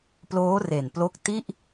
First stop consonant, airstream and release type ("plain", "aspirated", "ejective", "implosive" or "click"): plain